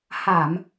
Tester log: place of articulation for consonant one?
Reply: glottal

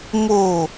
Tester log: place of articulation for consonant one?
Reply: labial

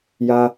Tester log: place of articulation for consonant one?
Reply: palatal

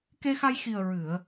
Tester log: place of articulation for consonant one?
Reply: velar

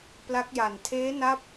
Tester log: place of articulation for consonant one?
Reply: labial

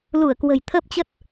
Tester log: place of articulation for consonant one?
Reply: alveolar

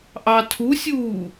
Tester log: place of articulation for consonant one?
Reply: glottal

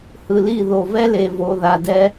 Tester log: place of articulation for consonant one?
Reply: glottal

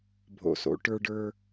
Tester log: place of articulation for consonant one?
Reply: labial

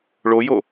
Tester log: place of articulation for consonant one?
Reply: retroflex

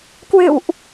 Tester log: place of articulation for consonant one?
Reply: velar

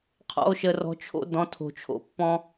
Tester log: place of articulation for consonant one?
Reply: uvular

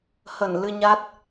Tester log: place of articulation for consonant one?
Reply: glottal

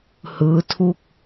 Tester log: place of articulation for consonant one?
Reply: glottal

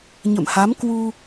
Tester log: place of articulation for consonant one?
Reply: palatal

